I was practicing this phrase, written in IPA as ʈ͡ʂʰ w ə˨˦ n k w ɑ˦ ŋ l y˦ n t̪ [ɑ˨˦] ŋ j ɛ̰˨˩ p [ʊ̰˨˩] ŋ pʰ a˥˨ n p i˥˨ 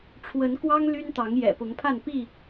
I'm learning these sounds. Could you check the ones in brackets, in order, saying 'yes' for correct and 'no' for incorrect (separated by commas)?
yes, no